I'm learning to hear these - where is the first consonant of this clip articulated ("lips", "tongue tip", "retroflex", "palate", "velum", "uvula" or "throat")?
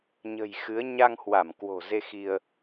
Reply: palate